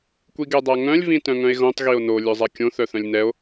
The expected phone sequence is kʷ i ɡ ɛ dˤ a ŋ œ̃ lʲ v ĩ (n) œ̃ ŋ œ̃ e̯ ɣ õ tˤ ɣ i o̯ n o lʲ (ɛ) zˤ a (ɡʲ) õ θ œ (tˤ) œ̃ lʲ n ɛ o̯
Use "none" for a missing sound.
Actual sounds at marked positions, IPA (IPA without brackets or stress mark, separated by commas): t, œ, kʲ, θ